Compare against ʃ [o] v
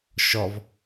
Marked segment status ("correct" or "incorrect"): incorrect